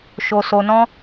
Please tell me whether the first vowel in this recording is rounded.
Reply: yes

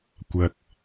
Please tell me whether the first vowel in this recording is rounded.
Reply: no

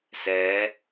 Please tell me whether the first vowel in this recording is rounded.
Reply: no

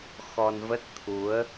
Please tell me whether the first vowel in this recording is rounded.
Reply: yes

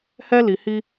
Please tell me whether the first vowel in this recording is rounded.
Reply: no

